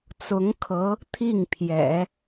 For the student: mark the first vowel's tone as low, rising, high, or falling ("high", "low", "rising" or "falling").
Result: rising